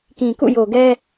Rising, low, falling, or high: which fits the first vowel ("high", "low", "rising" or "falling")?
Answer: low